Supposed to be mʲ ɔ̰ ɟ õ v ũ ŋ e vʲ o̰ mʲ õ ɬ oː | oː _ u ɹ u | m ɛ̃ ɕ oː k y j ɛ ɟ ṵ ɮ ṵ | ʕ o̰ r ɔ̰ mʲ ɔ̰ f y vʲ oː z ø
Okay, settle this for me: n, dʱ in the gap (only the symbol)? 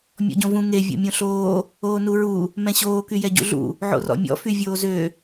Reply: n